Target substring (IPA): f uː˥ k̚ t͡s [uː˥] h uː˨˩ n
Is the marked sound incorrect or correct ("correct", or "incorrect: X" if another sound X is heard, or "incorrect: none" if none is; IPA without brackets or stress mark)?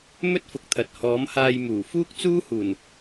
correct